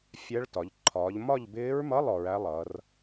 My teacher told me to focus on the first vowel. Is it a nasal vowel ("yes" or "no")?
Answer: no